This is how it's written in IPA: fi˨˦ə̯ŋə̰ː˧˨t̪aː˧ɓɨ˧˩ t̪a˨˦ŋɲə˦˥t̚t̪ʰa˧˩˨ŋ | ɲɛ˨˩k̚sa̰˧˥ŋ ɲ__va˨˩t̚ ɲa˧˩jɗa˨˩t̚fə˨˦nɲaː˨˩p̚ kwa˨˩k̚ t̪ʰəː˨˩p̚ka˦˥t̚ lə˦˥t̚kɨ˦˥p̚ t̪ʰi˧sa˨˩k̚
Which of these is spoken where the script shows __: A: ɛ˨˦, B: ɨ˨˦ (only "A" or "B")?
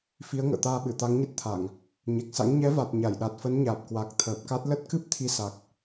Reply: A